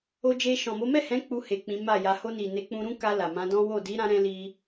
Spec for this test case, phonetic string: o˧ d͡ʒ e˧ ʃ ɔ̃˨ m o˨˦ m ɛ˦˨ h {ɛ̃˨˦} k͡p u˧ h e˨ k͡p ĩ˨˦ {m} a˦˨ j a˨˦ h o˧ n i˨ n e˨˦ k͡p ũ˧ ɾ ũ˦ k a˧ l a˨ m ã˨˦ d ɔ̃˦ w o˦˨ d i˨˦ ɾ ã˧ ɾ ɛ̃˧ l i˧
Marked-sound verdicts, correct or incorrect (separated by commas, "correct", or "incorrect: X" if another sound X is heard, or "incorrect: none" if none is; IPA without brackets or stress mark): correct, correct